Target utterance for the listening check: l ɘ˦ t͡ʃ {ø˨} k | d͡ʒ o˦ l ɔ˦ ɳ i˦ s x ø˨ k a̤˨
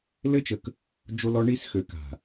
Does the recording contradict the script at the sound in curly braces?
yes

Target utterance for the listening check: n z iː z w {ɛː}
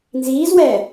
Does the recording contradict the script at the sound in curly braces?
no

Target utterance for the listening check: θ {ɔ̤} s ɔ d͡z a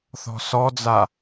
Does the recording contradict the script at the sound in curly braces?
no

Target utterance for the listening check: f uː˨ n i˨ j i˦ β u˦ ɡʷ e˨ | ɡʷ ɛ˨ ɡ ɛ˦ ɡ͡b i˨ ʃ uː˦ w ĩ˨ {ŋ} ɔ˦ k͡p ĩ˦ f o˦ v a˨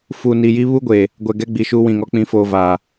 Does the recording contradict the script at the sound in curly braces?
no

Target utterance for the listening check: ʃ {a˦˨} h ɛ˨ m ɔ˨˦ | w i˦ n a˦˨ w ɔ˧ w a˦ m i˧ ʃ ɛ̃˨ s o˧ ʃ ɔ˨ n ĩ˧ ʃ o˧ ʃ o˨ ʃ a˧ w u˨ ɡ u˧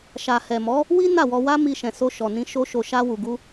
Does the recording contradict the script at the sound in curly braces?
yes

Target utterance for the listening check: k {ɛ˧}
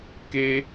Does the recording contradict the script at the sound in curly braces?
yes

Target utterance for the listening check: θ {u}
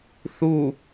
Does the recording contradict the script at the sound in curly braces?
no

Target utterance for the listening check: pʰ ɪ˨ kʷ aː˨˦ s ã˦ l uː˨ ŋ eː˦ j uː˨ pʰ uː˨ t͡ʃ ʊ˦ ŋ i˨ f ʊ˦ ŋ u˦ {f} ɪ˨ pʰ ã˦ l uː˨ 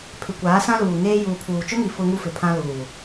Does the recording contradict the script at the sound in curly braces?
no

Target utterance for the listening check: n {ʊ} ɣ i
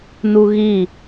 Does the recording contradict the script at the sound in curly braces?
yes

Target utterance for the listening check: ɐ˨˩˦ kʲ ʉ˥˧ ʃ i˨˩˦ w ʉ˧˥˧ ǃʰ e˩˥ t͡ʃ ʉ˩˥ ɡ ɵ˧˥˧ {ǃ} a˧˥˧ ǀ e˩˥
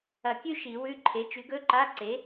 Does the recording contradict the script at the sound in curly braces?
no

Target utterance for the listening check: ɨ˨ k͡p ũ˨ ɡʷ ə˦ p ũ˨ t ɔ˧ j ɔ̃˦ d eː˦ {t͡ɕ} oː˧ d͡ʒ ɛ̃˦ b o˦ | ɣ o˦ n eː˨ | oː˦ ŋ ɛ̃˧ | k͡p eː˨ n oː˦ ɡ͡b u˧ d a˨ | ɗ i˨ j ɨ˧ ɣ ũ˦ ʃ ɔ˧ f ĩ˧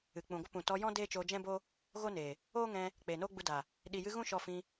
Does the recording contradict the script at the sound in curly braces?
yes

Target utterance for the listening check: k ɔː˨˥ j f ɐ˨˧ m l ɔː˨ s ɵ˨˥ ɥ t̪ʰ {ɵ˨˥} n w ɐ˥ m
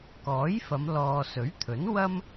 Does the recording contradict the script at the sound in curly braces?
no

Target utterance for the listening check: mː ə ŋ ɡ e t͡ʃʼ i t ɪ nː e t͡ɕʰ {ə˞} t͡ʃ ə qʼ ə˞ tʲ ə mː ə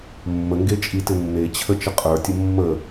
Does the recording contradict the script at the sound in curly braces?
yes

